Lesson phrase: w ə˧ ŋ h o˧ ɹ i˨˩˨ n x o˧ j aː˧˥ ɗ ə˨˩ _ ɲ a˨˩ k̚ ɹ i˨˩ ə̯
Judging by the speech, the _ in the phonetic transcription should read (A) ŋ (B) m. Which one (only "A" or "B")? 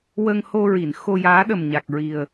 B